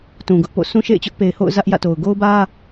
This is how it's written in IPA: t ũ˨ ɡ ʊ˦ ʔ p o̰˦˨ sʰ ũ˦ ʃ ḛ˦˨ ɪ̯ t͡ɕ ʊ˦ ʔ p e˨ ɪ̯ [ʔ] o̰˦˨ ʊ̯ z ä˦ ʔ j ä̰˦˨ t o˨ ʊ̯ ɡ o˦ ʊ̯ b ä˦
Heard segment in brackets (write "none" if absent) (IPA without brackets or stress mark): h